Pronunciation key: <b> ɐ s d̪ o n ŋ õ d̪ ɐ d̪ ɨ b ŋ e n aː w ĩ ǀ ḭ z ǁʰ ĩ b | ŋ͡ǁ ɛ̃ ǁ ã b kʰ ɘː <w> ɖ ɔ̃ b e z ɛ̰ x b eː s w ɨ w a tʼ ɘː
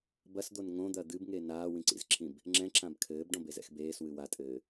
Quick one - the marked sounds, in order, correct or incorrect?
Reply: correct, incorrect

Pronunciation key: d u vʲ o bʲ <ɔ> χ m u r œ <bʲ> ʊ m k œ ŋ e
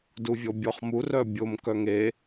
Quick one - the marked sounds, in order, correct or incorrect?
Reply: correct, correct

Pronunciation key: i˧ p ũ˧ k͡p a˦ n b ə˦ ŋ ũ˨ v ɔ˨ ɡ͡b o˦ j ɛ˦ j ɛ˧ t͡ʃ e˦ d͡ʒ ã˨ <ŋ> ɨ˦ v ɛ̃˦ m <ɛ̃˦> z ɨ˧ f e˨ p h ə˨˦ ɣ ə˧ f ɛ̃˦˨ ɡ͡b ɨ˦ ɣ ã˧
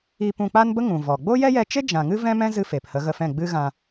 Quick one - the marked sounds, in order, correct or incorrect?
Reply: correct, correct

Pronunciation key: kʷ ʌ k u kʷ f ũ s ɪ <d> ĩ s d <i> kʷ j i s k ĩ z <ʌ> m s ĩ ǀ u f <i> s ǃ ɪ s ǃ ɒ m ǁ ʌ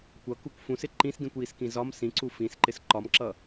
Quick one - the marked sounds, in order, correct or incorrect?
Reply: incorrect, incorrect, incorrect, incorrect

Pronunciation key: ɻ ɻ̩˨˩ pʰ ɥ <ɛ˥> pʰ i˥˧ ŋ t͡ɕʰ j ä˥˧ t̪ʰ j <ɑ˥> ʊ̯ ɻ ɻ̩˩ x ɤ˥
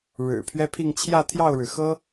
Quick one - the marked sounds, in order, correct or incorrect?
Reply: correct, incorrect

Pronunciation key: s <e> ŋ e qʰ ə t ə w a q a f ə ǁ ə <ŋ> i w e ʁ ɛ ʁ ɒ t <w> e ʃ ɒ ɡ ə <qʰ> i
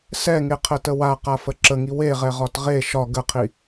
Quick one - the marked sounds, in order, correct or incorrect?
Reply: incorrect, correct, incorrect, correct

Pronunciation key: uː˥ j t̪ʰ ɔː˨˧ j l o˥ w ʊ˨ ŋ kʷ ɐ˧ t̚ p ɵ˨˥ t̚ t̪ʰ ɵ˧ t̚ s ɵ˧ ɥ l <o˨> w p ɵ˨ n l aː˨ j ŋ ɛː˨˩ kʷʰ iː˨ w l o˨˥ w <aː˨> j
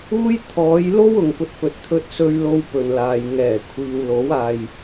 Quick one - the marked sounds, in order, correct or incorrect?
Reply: incorrect, correct

